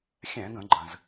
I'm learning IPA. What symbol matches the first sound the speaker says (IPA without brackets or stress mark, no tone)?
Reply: xʲ